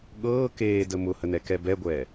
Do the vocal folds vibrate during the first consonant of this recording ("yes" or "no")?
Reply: yes